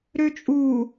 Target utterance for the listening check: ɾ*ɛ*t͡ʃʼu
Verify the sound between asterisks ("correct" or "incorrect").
incorrect